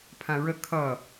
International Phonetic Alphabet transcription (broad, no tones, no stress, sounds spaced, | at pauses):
pʰ ã ɹ ə kʰ ʌ